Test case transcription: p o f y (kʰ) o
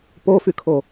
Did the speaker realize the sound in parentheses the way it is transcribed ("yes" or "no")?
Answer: yes